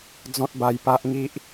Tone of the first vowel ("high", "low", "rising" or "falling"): high